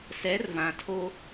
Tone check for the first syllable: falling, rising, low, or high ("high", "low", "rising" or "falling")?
rising